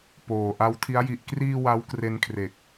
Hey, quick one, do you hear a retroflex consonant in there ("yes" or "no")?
no